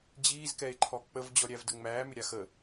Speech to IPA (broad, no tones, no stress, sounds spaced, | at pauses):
d͡ʑ iː z k ɛ e̯ ǃʰ ɔ k͡p ə v d͡ʑ ɔ ɾʲ æ v d ə ŋ͡m æː m ʏ ɾʲ a x ə